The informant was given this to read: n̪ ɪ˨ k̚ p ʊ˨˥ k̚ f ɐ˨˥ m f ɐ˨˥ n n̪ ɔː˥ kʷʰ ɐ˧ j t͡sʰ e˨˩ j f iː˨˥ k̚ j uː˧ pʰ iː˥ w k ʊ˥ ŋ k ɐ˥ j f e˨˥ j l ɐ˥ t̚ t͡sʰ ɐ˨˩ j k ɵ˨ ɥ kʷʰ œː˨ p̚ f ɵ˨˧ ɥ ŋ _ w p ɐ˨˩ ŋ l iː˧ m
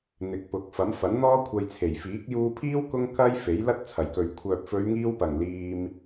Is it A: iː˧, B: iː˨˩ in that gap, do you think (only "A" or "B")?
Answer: A